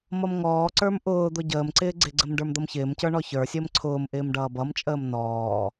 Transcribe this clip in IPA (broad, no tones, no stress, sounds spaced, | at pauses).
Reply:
m ʌ m ŋ ɔː ǀ ə˞ m ʔ ʊː d̪ ʊ ɟ əː m ǀ ɪː ɡ͡ǀ ɪ ɡ͡ǀ ə m ɖ ə˞ m d̪ ʌ m ç ɪː m c ə˞ ɳ ɔ ç ə˞ sʲ əː m ǀʰ ʊː m ʔ ɪː m ɖ ʌː b ʌ m t͡ʃʼ əː m n ɔː